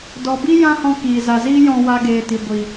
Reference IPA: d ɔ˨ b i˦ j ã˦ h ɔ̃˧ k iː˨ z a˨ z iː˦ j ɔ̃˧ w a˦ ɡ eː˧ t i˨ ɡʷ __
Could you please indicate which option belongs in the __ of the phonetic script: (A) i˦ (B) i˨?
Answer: B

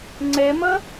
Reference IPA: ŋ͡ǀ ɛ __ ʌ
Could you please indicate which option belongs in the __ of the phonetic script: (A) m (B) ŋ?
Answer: A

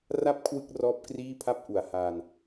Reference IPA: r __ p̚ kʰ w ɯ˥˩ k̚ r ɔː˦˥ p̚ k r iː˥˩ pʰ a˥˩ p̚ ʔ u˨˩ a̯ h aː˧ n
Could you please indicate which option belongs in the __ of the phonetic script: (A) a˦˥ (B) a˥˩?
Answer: B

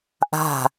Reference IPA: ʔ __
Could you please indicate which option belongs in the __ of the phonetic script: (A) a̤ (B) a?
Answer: A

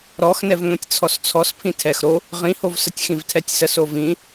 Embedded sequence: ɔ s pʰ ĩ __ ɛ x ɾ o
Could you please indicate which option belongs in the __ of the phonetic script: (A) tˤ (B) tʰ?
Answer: B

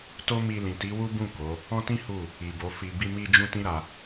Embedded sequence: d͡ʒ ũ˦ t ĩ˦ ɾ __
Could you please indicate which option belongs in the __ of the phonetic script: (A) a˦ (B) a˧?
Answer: B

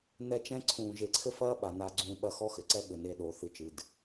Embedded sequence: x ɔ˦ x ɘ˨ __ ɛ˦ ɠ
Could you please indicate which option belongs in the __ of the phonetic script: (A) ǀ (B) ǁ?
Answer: A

